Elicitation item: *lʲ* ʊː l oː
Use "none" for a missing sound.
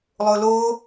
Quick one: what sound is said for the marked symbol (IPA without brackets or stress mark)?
lˠ